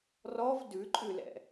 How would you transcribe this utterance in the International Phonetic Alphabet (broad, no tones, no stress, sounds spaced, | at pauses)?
r ɔ v d ʉ ǃʼ ʉ l ɛ̰